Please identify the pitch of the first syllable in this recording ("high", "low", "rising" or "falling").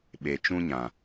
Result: low